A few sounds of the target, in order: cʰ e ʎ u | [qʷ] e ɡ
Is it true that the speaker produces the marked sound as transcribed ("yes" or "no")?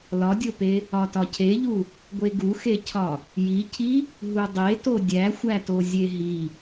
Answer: no